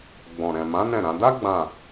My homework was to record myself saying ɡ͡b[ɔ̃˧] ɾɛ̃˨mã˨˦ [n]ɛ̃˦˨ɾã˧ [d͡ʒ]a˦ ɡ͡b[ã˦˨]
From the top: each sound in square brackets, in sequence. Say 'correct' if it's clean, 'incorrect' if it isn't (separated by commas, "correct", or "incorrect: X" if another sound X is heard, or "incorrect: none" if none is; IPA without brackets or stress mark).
incorrect: ɔ̃˨, correct, incorrect: d, correct